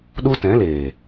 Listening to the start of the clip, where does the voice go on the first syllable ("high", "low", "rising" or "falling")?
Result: high